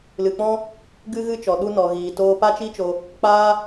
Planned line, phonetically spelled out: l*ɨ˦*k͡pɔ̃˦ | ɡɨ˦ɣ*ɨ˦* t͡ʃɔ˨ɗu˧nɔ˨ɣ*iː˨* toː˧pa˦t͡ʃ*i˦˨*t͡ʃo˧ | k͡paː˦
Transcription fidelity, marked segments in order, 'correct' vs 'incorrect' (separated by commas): incorrect, correct, correct, incorrect